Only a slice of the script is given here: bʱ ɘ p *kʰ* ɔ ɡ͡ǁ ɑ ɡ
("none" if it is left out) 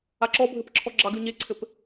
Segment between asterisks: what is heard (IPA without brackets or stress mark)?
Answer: ǁʰ